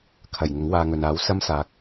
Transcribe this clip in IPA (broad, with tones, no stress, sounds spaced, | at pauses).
kʰ ɐ˨˩ j ŋ ʊ˨˥ ŋ w aː˧ ŋ ɵ˨ n aː˨˥ w s ɐ˥ m s aː˨ k̚